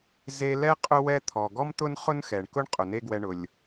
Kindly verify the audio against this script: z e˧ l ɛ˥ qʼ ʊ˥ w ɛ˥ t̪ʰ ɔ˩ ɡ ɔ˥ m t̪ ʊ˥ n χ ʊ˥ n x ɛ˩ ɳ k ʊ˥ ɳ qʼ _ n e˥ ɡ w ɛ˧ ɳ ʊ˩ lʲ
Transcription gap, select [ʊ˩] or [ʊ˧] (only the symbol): ʊ˩